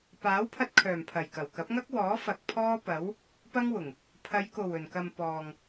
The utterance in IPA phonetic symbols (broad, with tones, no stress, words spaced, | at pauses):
paː˨˥wpʰɐ˧t̚kʰœː˨˩mpʰɐ˨˩j kɐ˨˩wkɐ˨˥p̚ŋɐ˥k̚wɔː˨˥ fɐ˨k̚pʰɔː˥pɐ˨˥w | pɐ˥ŋwʊ˨˩ŋ | pʰɐ˨˧jko˨˩w ɵ˨˩nkɐ˨m pɔː˨ŋ